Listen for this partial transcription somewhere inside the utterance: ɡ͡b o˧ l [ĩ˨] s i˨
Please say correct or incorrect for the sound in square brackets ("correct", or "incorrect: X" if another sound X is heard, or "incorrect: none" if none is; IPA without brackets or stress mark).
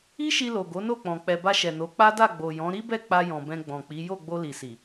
incorrect: i˨